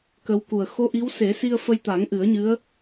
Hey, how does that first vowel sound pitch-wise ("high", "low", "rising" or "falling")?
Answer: rising